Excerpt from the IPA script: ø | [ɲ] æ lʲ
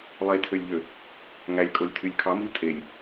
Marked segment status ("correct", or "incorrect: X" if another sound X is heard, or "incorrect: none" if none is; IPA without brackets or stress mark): incorrect: ŋ